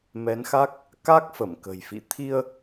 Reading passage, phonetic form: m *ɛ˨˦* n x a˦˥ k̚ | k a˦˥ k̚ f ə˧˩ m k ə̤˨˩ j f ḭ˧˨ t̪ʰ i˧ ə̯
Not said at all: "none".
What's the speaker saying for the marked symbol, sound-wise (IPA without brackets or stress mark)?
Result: ɛ˨˦